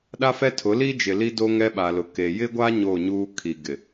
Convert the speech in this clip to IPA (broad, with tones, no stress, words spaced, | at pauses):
ɗa˦fɛ˦tʰʊ˨˦liː˦ d͡ʒɪ˨li˦do˦ ŋɛ˦ɓa˨lʊ˨ ke˨ jɪ˦ɡʷa˦ ɲo˦˨ɲuː˦ kʰi˨ɡɪ˨